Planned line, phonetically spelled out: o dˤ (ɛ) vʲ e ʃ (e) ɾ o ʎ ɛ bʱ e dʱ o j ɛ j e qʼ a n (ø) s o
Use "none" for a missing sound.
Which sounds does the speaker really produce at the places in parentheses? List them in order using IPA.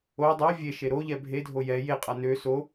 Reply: ɛ, e, ø

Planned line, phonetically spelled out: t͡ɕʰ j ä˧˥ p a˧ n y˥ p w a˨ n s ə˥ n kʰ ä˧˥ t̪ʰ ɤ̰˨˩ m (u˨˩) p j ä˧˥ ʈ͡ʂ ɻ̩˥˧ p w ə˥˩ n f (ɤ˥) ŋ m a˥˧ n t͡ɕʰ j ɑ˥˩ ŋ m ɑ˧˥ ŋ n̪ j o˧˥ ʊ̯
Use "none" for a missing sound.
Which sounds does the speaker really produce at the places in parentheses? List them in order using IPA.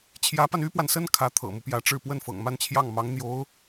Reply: u˦, ɤ̰˨˩

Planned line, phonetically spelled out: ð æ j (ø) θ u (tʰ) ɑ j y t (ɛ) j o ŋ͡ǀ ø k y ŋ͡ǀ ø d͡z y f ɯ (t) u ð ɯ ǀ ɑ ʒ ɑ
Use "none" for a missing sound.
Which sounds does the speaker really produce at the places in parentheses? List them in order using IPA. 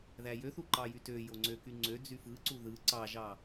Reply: ø, ǃ, ø, ǀ

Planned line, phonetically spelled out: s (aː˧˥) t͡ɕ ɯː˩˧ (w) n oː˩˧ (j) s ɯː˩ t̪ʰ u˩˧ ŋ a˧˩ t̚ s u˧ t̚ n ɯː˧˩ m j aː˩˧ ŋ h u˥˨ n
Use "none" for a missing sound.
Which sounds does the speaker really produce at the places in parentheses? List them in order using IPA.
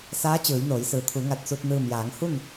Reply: aː˧˥, j, j

